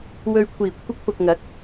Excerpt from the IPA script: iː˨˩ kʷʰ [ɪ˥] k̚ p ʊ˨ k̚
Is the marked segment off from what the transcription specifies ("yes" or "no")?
yes